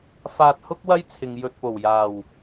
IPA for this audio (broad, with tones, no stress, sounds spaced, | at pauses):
f aː˧ t̚ h ʊ˥ k̚ w ɐ˥ j t͡sʰ ɪ˨ ŋ j ɵ˧ t̚ p o˨˩ w j aː˨˩ w